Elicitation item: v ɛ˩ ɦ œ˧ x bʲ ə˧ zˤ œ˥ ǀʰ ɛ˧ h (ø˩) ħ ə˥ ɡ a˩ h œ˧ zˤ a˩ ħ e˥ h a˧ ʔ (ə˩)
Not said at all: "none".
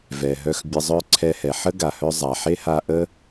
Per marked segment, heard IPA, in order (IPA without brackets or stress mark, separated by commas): ɛ˩, ə˥